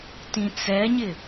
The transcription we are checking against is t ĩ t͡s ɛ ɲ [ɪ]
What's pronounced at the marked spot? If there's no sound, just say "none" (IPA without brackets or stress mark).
ɪ